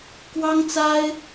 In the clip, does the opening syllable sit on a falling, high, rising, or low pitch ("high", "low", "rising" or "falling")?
high